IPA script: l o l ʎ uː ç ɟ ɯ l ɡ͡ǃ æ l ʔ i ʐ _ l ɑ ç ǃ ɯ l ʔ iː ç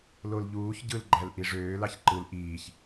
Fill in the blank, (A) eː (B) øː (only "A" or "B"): B